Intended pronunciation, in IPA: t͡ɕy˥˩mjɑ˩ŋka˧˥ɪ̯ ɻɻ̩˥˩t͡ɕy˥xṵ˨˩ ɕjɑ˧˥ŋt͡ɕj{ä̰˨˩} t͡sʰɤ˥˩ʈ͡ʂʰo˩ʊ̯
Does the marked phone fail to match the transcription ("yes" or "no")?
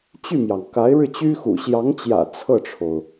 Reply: no